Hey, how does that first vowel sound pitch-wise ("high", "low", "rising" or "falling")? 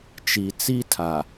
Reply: low